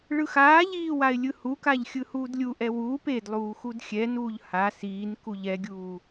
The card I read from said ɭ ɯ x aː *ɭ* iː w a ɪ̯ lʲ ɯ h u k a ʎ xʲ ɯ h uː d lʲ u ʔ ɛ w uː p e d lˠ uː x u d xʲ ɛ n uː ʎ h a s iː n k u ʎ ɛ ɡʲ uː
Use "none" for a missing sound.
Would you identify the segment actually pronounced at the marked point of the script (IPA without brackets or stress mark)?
ʎ